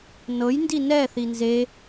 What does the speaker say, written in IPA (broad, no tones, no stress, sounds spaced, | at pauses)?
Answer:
n ɤ j n d i n ɛ θ i n z e